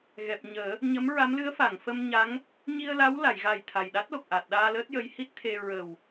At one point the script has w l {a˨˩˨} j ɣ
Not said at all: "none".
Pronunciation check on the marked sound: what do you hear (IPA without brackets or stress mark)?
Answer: a˨˩˨